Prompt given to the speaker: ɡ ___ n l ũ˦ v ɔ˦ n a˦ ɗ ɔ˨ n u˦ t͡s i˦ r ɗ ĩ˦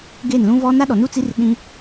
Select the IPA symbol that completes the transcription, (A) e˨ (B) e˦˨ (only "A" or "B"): B